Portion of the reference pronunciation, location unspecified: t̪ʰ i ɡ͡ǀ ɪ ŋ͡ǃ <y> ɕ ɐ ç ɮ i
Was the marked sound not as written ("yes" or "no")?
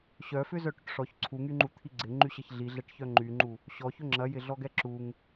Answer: no